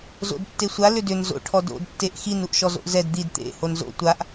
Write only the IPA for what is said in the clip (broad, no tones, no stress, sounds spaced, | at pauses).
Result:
z o̰ d tː e sʷ a l ʏ d ʏ n z o̰ ʈʰ ɔ d o̰ d tː e ʔ x i n u ʔ ʃ ɔ z o̰ ʔ z ɛ d d̪ i d t̪ ḛ h o n z o̰ tʷ a ʔ